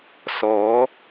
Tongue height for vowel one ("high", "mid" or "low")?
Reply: mid